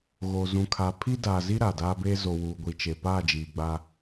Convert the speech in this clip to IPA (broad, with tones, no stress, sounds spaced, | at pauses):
ɣ o˨ z ũ˨ kʰ a˨ pʰ i˦ d aː˨ z i˦ ɾ aː˨ d aː˦ b eː˦ z o˨ w uː˨ ɡʷ i˨ t͡ʃ e˨ p aː˦˨ d͡ʒ iː˨ ɡ͡b aː˦